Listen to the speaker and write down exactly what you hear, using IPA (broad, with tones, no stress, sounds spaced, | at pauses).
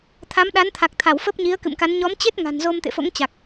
t̪ʰ a˨˦ m ɗ a˨˦ n t̪ʰ a˨˩ k̚ t̪ʰ a˧˩ w f ə˦˥ p̚ ɲ i˨˦ ə̯ k ɨ̰˧˨ m k a˨˦ n ɲ ɔ˨˦ m t͡ɕ e˦˥ t̚ ŋ a̤˨˩ n z o˧ m t̪ ḛ˧˨ f o̰˧˥ ŋ t͡ɕ a˨˩ k̚